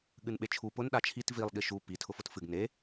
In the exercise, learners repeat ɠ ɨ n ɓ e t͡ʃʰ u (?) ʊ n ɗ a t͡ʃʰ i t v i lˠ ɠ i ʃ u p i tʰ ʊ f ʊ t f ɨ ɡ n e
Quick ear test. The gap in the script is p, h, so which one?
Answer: p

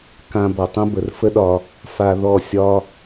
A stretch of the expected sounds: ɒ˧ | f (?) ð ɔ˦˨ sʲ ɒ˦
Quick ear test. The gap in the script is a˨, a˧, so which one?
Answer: a˧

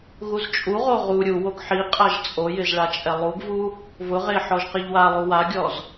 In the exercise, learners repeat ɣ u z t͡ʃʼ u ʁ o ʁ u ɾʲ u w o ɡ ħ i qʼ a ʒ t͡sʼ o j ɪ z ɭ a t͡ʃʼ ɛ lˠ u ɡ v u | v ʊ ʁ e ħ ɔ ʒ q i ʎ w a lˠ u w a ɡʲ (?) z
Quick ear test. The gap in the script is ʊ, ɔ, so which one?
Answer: ɔ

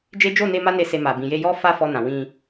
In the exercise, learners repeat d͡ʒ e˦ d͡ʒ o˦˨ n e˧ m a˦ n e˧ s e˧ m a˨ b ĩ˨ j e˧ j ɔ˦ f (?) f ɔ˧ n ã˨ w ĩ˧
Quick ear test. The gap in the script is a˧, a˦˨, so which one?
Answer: a˦˨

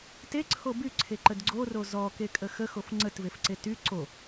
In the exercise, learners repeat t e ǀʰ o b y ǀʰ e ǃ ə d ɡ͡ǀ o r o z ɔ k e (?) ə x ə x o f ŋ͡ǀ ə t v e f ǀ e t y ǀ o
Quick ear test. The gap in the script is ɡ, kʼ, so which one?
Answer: kʼ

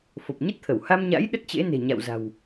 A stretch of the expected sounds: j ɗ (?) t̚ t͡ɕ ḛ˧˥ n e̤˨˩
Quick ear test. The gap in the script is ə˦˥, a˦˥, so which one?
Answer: ə˦˥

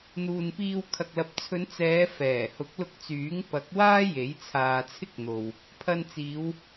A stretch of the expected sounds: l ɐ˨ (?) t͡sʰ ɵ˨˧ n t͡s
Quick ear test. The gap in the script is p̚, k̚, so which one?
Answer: p̚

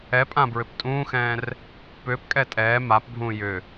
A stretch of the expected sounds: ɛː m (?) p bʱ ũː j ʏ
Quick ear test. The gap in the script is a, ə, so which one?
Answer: a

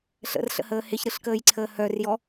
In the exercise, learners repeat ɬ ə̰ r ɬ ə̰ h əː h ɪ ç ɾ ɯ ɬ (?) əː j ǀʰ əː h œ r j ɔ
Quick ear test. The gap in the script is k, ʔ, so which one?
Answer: k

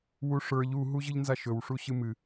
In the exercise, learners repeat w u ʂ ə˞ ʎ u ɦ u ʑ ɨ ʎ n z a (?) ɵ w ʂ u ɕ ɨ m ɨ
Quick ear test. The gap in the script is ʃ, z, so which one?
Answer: ʃ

